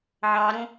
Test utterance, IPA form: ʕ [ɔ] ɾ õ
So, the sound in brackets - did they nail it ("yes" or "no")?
no